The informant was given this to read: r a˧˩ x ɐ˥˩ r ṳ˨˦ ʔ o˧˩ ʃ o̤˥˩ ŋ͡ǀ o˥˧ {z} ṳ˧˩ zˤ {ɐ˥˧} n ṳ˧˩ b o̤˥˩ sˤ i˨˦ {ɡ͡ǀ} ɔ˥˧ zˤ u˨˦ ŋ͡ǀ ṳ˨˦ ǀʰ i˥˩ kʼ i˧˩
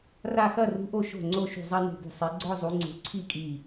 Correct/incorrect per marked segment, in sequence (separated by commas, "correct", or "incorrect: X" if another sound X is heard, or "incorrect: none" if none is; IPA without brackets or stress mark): incorrect: ʃ, correct, correct